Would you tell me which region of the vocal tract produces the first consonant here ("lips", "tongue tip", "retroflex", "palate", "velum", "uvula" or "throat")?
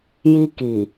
palate